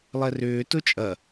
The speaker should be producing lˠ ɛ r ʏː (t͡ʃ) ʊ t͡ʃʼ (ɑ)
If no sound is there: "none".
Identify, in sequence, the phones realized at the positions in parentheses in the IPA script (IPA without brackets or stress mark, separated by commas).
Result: t, ɐ